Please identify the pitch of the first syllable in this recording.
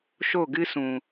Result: falling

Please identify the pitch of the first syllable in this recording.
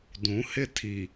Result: rising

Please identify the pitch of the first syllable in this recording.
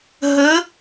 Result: rising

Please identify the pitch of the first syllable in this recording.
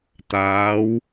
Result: rising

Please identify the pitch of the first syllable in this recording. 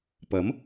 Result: rising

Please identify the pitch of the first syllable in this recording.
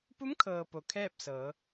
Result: rising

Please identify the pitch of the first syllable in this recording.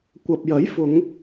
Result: low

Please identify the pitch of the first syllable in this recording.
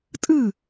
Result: falling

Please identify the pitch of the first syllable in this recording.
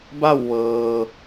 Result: falling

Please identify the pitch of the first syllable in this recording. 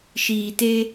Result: low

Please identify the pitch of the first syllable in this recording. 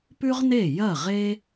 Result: high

